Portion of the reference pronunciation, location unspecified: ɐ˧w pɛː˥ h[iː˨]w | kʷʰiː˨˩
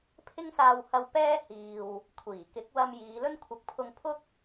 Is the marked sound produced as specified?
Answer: yes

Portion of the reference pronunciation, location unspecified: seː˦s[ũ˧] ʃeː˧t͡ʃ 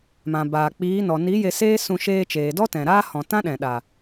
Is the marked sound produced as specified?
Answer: yes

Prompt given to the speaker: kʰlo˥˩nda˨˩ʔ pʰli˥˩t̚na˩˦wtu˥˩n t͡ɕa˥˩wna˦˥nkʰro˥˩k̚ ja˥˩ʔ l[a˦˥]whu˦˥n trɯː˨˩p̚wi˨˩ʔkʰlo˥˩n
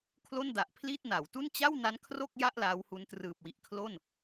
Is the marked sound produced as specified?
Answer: yes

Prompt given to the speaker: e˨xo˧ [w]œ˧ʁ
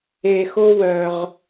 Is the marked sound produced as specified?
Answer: yes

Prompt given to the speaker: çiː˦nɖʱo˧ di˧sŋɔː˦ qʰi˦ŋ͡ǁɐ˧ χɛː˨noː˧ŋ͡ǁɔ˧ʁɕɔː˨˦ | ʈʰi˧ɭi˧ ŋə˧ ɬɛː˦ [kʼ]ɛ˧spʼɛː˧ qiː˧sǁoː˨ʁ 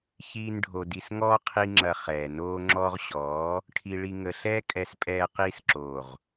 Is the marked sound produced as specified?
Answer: yes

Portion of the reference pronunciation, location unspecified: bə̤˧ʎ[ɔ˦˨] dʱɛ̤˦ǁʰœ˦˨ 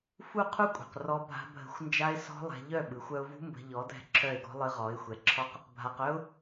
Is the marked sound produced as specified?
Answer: no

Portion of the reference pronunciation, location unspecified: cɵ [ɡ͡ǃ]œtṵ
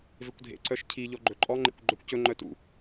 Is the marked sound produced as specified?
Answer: no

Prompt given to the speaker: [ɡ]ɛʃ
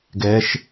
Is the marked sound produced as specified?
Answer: yes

